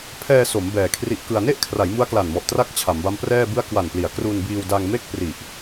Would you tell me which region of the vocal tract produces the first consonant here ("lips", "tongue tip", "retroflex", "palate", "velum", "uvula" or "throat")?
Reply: lips